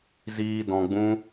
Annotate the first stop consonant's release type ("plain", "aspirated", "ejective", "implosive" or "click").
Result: plain